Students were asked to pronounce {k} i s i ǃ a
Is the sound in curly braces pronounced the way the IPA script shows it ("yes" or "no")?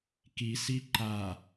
yes